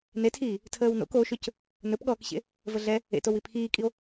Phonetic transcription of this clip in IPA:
n e tʰ iː | tʰ əː w n o̰ k o ʃ ɵ c | n ɵ p ɠ ɔː k ɕ ḛ | v ə ɮ ɛ | ḛ t o w i pʰ iː kʼ i o̯

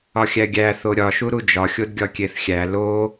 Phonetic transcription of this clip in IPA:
ɒ xʲ æ ɡʲ æ θ o ɾʲ ɒ ʃ u ɾ u d͡ʒ ɒ xʲ o d ɡʲ ɒ kʲ e θ xʲ æ l o

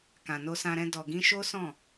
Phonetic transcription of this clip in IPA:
k ã˨ n o˧ s ã˧ ɾ ɛ̃˧ d ɔ˨ ɡ ĩ˧ ʃ o˦ s ɔ̃˦˨

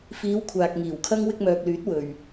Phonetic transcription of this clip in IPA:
f iː˨˧ w kʷʰ aː˨ k̚ ŋ iː˨˩ w kʰ ɐ˥ ŋ w ɪ˧ k̚ m œː˨ k̚ l yː˨˥ t̚ w ɵ˨ ɥ

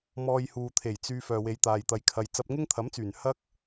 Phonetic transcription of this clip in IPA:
m ɔː˧ j h uː˨ t̪ʰ e˨˩ j t͡s yː˧ f œː˨ w e˨˧ j t̪ aː˨ j t̪ ɐ˨ j kʰ ɐ˨ j t͡s ɐ˧ p̚ ŋ ɪ˥ ŋ t̪ʰ ɐ˨˥ m t͡s yː˨˩ n h ɐ˥ k̚

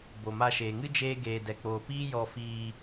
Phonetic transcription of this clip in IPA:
b o˨ m a˧ ʃ eː˨ ŋ ɨ˦ d͡ʒ eː˧ ɡ eː˨ d ɛ˨ k͡p oː˨ p iː˦ j ɔ˧ f iː˧

